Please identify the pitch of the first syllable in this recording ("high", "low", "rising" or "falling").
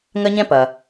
high